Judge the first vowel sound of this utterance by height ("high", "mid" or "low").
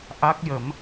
low